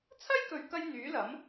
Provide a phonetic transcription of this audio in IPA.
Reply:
t͡sʰ ɐ˥ j k ɵ˨ ɥ k ɐ˧ j n̪ yː˨˥ l ɐ˨˥ m

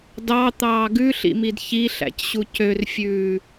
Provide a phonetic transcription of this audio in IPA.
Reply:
d ɑ t̪ ɑː ɡ ʉ ɬ ḭ m i d ç i ɬ æ̰ c ɕ u c ø r fʲ ʉː

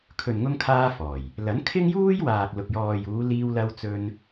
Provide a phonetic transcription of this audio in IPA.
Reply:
kʰ ɵ˨ n ŋ ʊ˧ ŋ kʰ aː˧ f ɔː˨˩ j | l ɐ˨˥ n kʰ ɪ˥ ŋ j uː˥ j w aː˨ k̚ l ʊ˨ k̚ j ɔː˨ j uː˨˧ l iː˧ w l ɐ˧ w t͡s ɵ˧ n

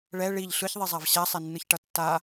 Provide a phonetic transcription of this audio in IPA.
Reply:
ɭ ɛ ɭ i ʎ ɬ ɯ ç ðˤ i zˤ a v ɕ a sˤ ɛ nː ɯ ç ʈ ʌ tː a

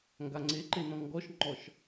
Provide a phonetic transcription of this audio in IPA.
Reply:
ŋ ɡ a ŋ͡ǀ e ǃ e n ɔ̃ ŋ ɡ ɔ ʃ ŋ͡ǃ ɔ ʃ

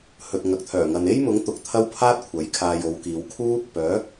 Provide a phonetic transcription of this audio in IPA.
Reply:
h ɵ˨ t̚ ŋ ɐ˨ k̚ t̪ʰ œː˨˩ ŋ ɐ˨ n e˥ j m ʊ˨˥ ŋ t̪ ʊ˨ k̚ t̪ʰ ɐ˥ w pʰ aː˥ t̚ kʷʰ ɐ˨˥ j kʰ aː˧ j o˨˧ w k iː˨˧ w kʰ uː˥ | p œː˨˥

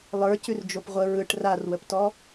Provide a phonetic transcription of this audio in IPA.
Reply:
lˠ ə˞ c ʉ r d͡ʒ o p ʁʷ ə ɹ ɯ ʈ r a r w ə p t ɔ

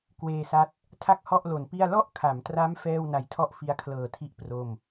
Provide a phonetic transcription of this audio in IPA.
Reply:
k w eː˧ s a˦˥ t̚ | tʰ a˥˩ k̚ h ɔ˥˩ ʔ l o˨˩ n p i˥˩ a̯ l ɔ˥˩ ʔ kʰ a˩˦ m t r a˦˥ m f ɛː˥˩ w n a˧ j tʰ ɔ˥˩ ʔ f i˦˥ a̯ kʰ l ɤː˨˩ tʰ i˦˥ ʔ p r o˥˩ m

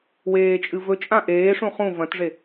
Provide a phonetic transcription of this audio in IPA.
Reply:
w eː t͡ʃʼ ɨ v ɵ t͡ʃʼ ã ʔ eː ʂ ũ χ ũ v ɐ̃ t ʐ e

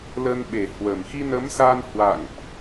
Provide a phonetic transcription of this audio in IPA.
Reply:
l ə˧ n ɓ e˨˩ h w ə˨˩ m x i˧ n ə˨˦ m s a˧ n h w a̰˧˨ ŋ ʔ

